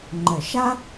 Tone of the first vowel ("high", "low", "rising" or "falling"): low